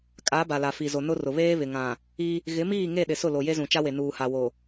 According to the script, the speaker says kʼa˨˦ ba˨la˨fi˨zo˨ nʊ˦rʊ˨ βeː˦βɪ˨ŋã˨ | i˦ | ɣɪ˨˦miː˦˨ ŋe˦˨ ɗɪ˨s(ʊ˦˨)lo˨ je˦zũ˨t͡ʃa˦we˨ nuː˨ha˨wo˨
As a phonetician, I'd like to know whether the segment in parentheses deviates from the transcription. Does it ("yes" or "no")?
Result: no